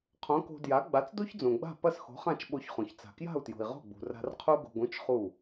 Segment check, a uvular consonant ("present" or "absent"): present